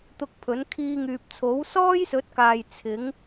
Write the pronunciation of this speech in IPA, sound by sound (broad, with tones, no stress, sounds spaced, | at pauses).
t̪ ʊ˧ k̚ pʰ ɵ˨˥ n kʰ iː˧ ŋ yː˨ p̚ t͡sʰ o˨˥ w s ɔː˥ j s ɵ˨˥ t̚ k aː˨ j t͡sʰ ɪ˨˥ ŋ